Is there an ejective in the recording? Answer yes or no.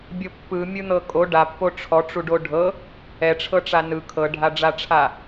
yes